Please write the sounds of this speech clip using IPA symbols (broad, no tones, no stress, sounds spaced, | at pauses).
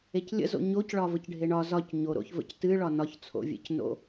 e c lʲ ə̰ z o̰ ɲ o c ɭ ɒ v ə c ɖʱ e ɳ ɒ z ɒ c ɲ o ɾ o̰ ç v ə̰ c t ɨ ɭ ɒ n ɒ ç t͡sʰ o̰ vʲ ḛ c n o̰